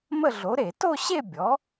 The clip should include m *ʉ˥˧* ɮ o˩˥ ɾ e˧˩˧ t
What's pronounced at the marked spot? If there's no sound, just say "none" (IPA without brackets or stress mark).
ə˥˧